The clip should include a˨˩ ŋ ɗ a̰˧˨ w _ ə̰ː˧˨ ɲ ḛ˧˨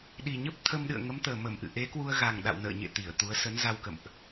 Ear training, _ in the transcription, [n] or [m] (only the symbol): n